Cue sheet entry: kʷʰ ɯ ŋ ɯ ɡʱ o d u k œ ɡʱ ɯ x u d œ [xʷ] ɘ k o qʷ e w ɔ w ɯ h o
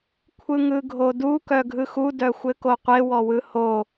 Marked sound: correct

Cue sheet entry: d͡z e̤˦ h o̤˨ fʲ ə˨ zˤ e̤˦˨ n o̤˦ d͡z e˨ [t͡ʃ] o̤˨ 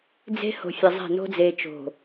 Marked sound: correct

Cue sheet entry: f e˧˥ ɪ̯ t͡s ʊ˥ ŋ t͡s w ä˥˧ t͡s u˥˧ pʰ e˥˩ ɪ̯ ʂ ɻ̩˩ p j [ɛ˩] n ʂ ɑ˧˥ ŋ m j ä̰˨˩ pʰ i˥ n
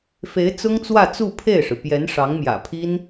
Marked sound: incorrect: ɛ˧˥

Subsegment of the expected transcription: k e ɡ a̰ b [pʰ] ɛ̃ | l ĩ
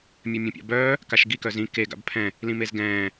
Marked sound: correct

